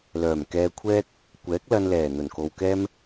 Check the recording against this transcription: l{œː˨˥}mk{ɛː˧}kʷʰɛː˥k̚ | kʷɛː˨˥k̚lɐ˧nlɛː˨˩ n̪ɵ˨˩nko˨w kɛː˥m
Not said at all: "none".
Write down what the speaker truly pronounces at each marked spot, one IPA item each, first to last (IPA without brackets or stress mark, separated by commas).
œː˨˩, ɛː˧